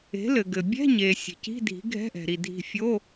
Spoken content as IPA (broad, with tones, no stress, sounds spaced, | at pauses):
e̤˩˥ l ɘ˩ ɡ ɘ˩ bʲ ɛ̤˧˥˧ ɲ e˩ sʲ e̤˩ c i̤˧˥˧ dʱ i̤˩˥ ɡʱ ɛ̤˧˥˧ ʔ ɛ̤˩ ɾ i˩ dʱ i̤˧˩ fʲ o˧˥˧